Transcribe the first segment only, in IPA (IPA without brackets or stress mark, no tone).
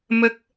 m